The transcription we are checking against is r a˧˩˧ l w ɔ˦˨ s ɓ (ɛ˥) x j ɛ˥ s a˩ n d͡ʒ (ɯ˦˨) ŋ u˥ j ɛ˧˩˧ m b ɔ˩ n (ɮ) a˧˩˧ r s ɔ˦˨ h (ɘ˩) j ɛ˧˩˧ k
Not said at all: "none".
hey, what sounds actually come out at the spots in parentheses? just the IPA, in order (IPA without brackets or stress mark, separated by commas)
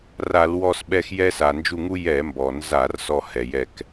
ɛ˦˨, u˦˨, z, ɛ˩